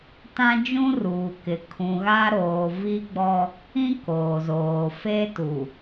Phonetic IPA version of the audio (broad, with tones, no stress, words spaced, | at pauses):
tã˦d͡ʒũ˦ruː˨kɪ˨ kʰũ˨ ɣa˦ ɾoː˨vi˦ɡ͡bɔ˦ | ĩ˦ koː˨zoː˨ fe˦tu˨